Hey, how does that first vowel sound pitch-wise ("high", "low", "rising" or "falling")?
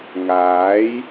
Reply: rising